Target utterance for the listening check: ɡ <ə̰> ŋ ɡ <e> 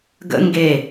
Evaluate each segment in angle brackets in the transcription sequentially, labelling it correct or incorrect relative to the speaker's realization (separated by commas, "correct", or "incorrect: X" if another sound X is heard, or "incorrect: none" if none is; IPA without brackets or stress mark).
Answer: correct, correct